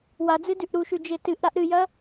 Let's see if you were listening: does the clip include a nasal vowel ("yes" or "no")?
no